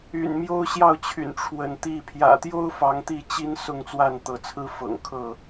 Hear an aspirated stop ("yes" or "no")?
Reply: yes